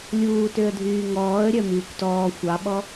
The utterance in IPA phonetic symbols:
lʲ uː t ø ə̯ dʱ yː ŋ ɔː ə̯ ɾʲ œ m yː kʷ t ɔː xʷ ɑ ɓ ɔ

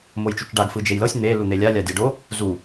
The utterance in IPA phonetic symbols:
m o j t͡ʃ u t͡ʃ ɖ a ɡ f ɯ d͡ʒ e j l ɤ sʲ n̪ e l u n̪ e lʲ a lʲ a dʲ a ɖ o | z u

